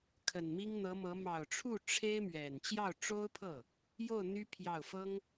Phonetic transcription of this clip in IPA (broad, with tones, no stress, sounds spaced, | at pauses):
kʰ ə˨˩ n m i˥ ŋ n̪ ɤ˧˥ m ɤ˧˥ m ɑ˨˩ ʊ̯ ʈ͡ʂʰ u˥˩ ʈ͡ʂʰ e˥ ɪ̯ m ɥ ɛ˨˩ n t͡ɕ j ɑ˥˩ ʊ̯ ʈ͡ʂ o˥ ʊ̯ pʰ ɤ˥˩ | j o˥˩ ʊ̯ n̪ y˥ pʰ j ɑ˥˩ ʊ̯ f ɤ˥ ŋ